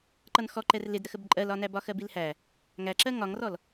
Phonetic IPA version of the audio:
ǃʌnxɔ ǃɛrlɪdɾəxəb ǃʼɜlɒnæbɒ xɜbilhæ | ŋæǁɜ ŋɒŋrɔl

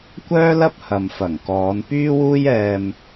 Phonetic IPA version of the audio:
kʷœː˥lɐ˥p̚hɐ˨m fɐ˨˩ŋkɔː˨˧n pyː˥wuː˥jɛː˧m

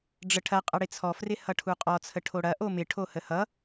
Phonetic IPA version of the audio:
ɖ͡ʐəʈʰɐ qʼɐɽɪt͡sʰɔ frɪhʌʈʰuqʼɔ t͡sʰəʈʰoɽɐ ʔomɪ ʈʰohəhʌ

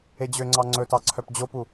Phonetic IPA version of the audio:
ed͡ʑøŋ͡ǀɑ ŋ͡ǀɵtɑ ǀʰœpd͡ʑopu

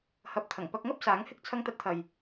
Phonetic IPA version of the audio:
hɐ˨˥p̚t̪ʰɐ˨˩ŋ pɐ˧k̚ŋɐ˥p̚ saː˨˥ŋhɪ˥k̚ t͡sʰɐ˥ŋ t̪ɐ˧t̚t̪ʰɐ˨j

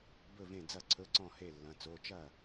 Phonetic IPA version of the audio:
bɵ˥˩vẽ˥˩d͡zɐ˥˩ ǀʰɵ˧˥˧ǀɔ̃˥˩he˥˩lːɐ̃˩˧˩ t͡so˩˧˩ t͡ʃɐ˥˩

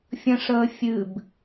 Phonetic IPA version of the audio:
fʲə̃ʂəː fʲɨb

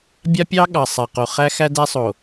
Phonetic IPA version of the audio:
bʲa˦pʲɑ˦ ɠɑ˨sˤa˨qo˨ χæ˦xæ˦dæ˦sˤo˨

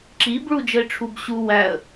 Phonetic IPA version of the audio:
ǁib ɭud͡ʒəɪ̯ʈ͡ʂʰubɕu wæə̯

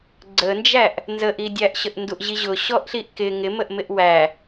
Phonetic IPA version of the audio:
ɡ͡ǀənd͡ʒæʔ | nzəʔidʲæʔ ɕəʔnduʔʑiʑʊ ɕɔʔɬiʔkɪ ŋɪməʔmɪʔ wæ

